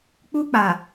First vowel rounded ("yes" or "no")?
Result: yes